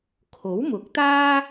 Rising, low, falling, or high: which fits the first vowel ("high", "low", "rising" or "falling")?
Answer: rising